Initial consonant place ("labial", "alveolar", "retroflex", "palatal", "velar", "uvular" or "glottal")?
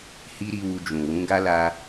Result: glottal